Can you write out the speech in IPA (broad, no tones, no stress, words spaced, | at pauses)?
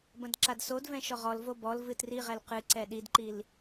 bɐ̃dǁadsodvɛ̃ ʃɔʁɔlvo bɔl vɨtriʁɛl qɨǀɛ ɗidǃil